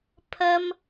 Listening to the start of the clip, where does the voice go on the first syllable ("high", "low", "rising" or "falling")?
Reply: high